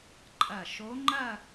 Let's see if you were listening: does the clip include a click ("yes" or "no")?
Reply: yes